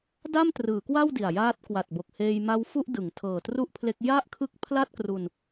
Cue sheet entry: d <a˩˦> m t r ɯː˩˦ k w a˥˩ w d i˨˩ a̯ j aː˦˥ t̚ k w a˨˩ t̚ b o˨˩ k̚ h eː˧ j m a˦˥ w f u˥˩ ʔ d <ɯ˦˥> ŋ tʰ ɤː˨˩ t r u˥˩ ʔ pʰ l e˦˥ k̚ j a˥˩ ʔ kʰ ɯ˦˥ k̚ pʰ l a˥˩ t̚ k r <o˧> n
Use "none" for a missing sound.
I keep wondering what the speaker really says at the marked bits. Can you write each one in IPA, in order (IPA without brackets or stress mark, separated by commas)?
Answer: a˥˩, ɯ˩˦, u˧